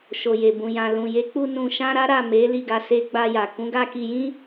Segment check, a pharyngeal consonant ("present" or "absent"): absent